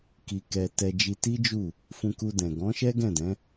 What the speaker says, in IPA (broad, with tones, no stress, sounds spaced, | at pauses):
k i˧ k ɛ˧ t ɛ˧ d͡ʒ i˧ t i˦ d͡ʒ u˦˨ | f ũ˧ k u˧ d ɛ̃˨ ɡ ɔ̃˨˦ ʃ ɛ˦ ɡ ɛ̃˦˨ d ɛ̃˨˦